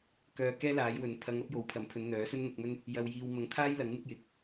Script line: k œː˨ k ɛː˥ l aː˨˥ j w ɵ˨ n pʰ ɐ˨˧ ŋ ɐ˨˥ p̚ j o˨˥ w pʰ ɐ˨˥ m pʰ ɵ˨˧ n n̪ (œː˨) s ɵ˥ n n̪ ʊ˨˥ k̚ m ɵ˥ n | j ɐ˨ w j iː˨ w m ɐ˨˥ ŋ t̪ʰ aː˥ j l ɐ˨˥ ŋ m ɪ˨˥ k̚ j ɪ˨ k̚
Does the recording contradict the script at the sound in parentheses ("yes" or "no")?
yes